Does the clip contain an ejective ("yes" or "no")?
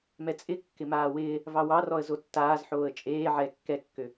yes